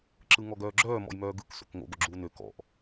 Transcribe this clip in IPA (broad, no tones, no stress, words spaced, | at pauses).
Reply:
ǁɯŋɔɡœːɡ͡ǁœː mɔ̰jmœːɡɯk so̰kŋo̰ ɡoɡ͡ǁuːnø kɔ̰ʔ